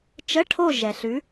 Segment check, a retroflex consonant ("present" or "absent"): present